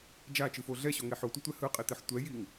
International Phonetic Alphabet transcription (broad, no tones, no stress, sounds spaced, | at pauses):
d͡ʒ a t͡ʃ ɯ f o ɮ ɛ ɕ o ŋ e ħ o tʷ ʌ tʷ ɛ h ɯ qʼ i t̪ e ħ tʷ ɛ j i ŋ